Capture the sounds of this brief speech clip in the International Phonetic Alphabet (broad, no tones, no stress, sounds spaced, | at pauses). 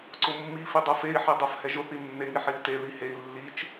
ǀ ʊ mː i f i dˤ ɤ f e i̯ ħ i dˤ ɤ f h ɛ ʒ ʊ θ i nː e ŋ i ħ i u̯ t e ð i h e i̯ lː i t͡ʃ